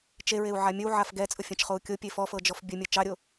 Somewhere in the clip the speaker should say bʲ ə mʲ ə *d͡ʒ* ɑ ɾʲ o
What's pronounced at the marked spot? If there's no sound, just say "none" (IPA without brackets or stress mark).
t͡ʃ